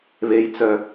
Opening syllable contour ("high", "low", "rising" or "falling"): low